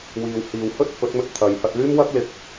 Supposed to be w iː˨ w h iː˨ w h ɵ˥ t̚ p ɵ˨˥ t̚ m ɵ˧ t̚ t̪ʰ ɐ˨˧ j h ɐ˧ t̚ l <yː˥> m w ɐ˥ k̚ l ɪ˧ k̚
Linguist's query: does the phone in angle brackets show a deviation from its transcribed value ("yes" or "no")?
no